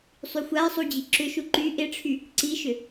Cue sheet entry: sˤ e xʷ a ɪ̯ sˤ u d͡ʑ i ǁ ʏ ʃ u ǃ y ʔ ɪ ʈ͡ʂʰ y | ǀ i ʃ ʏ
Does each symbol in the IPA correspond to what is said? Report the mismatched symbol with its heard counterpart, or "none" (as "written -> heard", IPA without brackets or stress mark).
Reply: e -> y